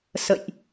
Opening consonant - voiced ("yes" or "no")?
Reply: no